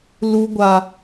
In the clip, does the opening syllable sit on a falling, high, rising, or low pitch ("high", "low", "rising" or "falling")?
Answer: low